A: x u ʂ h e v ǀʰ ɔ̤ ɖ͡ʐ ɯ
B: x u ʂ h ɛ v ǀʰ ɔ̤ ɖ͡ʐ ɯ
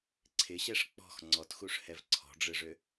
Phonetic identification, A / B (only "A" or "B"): B